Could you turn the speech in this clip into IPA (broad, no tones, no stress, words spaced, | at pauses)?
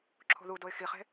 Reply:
ǁʰo̤ðudoɪ̯ xiχe̤